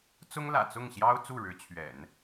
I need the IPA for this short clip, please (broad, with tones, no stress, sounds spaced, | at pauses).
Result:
t͡s ʊ˥ ŋ l ä̰˨˩ t͡s ʊ˥˩ ŋ ɕ j ɑ˥ ʊ̯ t͡s u˥˩ ɻ ɻ̩˧˥ t͡ɕʰ ɥ ɛ̰˨˩˦ n